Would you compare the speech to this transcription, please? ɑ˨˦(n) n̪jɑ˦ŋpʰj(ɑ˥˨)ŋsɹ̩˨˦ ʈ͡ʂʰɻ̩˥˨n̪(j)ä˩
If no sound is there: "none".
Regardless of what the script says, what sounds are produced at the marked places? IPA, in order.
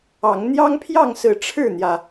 ŋ, ɑ˥˨, j

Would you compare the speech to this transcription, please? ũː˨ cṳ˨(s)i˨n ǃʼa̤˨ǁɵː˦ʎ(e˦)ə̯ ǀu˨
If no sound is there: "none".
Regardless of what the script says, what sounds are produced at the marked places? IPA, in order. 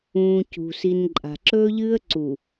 s, ɨ˦

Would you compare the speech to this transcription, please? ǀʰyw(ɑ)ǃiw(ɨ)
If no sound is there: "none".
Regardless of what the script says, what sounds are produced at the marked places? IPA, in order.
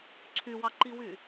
ɑ, y

